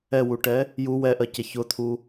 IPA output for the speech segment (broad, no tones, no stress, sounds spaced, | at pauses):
ɛ w u ʈ ɛ | j u w ɛ ʔ ɜ c ɛ ç ʊ t̪ʰ u